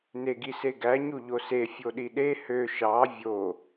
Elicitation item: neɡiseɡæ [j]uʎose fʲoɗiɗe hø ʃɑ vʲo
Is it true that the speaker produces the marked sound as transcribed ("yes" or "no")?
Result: no